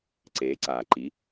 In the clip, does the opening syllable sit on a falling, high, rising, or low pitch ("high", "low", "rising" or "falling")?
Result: rising